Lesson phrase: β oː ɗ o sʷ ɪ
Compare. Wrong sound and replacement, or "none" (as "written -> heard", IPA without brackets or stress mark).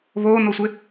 ɗ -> n